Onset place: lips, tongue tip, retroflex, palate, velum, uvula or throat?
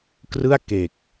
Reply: velum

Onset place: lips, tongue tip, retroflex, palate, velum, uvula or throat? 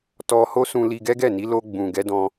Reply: tongue tip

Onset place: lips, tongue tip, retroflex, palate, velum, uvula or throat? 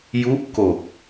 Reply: palate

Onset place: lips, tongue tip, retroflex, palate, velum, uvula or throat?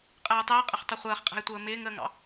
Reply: uvula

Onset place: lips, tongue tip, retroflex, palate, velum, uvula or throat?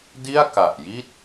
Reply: tongue tip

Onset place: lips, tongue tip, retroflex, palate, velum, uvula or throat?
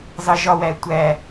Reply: tongue tip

